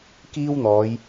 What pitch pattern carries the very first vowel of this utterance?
high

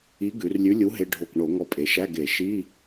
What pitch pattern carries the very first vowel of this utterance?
rising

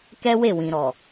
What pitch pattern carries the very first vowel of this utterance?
high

